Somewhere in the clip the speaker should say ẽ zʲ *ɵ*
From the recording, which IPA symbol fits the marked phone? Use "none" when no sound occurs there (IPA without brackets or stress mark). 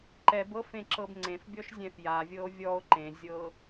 ɤ